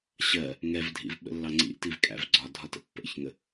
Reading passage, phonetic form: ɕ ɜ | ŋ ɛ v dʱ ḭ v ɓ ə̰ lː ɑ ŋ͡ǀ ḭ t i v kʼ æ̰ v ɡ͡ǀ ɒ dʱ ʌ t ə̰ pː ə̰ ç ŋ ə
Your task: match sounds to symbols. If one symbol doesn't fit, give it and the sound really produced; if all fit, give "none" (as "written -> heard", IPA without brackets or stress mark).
ʌ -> ɒ